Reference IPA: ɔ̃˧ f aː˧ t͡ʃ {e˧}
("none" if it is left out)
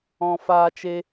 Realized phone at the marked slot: e˧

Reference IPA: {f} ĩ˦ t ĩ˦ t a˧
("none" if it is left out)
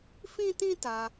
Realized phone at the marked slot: f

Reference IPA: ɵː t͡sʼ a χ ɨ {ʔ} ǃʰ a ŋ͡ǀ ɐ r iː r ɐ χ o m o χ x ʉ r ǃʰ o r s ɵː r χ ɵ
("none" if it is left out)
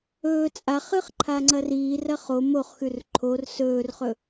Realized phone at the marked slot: χ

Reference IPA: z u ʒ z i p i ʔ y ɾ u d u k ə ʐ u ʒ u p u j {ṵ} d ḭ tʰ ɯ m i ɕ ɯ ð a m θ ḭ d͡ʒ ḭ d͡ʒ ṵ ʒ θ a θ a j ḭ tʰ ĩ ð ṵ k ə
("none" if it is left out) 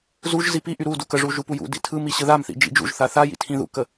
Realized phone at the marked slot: ṵ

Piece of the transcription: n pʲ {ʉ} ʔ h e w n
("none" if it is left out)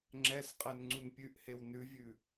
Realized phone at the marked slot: ʉ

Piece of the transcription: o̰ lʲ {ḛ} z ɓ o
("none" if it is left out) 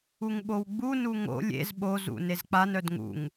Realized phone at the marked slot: ḛ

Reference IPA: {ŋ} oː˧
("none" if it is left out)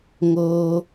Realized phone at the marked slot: ŋ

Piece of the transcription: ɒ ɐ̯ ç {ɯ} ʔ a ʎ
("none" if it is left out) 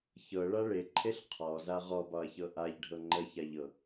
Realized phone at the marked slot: ɤ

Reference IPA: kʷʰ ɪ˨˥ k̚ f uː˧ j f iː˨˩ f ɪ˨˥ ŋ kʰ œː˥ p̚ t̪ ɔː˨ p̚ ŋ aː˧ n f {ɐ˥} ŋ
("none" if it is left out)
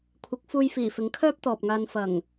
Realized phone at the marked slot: ɐ˨˩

